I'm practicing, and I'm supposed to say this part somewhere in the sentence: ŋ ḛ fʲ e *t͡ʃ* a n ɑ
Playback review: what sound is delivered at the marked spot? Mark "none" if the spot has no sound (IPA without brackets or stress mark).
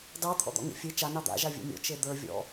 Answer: t͡ʃ